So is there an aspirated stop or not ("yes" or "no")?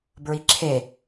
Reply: yes